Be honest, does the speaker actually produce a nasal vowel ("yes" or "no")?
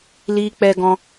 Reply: yes